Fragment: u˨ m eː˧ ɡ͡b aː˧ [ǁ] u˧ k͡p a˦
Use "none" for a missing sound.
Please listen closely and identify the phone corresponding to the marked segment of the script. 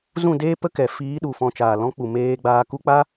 k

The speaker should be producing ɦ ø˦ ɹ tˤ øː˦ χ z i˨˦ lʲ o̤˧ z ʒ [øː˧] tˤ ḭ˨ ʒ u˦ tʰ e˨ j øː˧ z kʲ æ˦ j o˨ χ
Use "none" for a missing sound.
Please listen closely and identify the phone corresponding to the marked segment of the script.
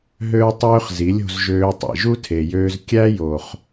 øː˧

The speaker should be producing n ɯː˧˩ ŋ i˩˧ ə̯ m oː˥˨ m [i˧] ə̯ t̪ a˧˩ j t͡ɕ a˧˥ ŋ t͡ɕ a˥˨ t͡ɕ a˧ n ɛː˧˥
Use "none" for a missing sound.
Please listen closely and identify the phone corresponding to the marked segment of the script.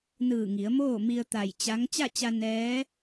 i˧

